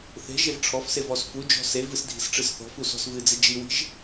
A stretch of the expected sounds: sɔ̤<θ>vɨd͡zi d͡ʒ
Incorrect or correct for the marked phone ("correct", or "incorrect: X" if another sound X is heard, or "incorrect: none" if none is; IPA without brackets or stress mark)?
incorrect: s